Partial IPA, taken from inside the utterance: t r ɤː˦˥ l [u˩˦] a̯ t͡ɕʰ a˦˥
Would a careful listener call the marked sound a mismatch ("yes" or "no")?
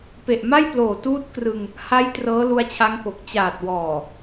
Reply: yes